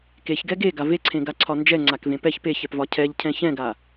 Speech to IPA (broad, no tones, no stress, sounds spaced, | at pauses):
k e ç ɡ ɛ ɡ e ɡ a v e ǀʰ ẽ ɡ a ǀʰ ɒ n d͡ʒ ɛ ŋ͡ǀ a k v ẽ p ɛ ç p e ç ɛ p v ɒ cʰ ɛ ʎ cʰ ɛ̃ ç ɛ̃ ɡ a